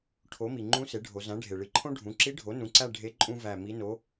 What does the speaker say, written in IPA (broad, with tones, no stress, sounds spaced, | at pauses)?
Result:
ʈʰ o˩˥ m i˩ ŋ͡ǃ ũ˧˥ s e˩˥ ɖʱ o˩˧ z æ̃˩˥ ɖʱ e˩ ɭ i˩˧ ǃʰ õ˥ ɖʱ ũ˩˥ ǁ i˧˥ ɖʱ o˩˥ n ũ˩˥ ǀ æ˦˨ ɖʱ e˧˥ ǃʼ ũ˥ v æ˦˨ m i˧˥ n o˧˥